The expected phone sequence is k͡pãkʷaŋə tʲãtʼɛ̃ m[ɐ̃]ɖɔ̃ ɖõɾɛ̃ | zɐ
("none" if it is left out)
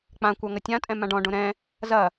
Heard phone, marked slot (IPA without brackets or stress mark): ã